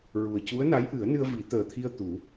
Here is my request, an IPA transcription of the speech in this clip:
ɹ u˨˩ ə̯ c u˧˥ ə̯ n a˧˥ j ʔ ɨ˨˩˦ ə̯ n ɨ˧ ə̯ v i˨˩˦ t̪ əː˨˩ t̪ʰ i˧ ə̯ t̪ u˨˩˦

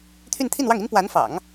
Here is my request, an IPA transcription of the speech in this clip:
t̪ʰ y˥˧ n t̪ʰ i˥˧ n w ɑ˥˩ ŋ i˥ n p w a˧˥ n f ɑ̰˨˩˦ ŋ

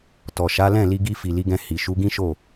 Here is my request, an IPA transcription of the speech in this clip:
t ɔ˨ ʃ a˨˦ l ɛ̃˦˨ l i˧ ɡ i˧ f i˨ l i˨˦ ɡ ɛ̃˧ h i˨ ʃ u˨˦ ɡ ĩ˦ ʃ o˦˨

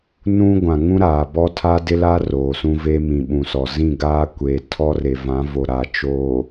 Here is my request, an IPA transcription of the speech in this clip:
n ũ˦ ɡʷ ã˨ ŋ ũ˦ ɾ aː˨ b ɔ˦ tʰ a˦ d ɪ˦ l a˦ r oː˨ s ũ˦ v e˦ m ĩ˨ ɓ ũ˨ s ɔ˨ z ĩ˦˨ ɡ aː˦ kʷ eː˨ tʰ ɔ˦ r e˨ v ã˨˦ v o˨ ɾ a˨ t͡ʃ oː˨

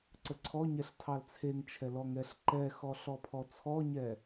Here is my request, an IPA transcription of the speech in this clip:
ǀ ə ǀʰ ɔ ɲ ɛ ɬ tʰ ɑ l t͡sʰ e ŋ t͡ʃʰ ɛ l ɔ ŋ ɛ ɬ ǃ ɛ x ɔ ɬ ɔ pʰ ɔ t͡sʰ ɔ ɲ ɛ

